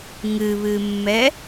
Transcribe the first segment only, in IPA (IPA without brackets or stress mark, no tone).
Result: ŋ